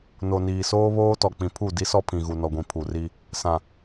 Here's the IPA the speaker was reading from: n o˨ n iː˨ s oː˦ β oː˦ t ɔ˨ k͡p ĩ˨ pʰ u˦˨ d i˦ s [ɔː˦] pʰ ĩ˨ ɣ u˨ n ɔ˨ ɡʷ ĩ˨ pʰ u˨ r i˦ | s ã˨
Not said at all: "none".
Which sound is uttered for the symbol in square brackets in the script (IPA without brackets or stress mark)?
ɔ˦